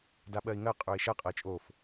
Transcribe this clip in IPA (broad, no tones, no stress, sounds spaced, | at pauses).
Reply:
d a ɓ ɜ i̯ ŋ ɜ qʼ ə˞ i̯ ʃ ɐ qʼ ɐ i̯ t͡ʃʼ o f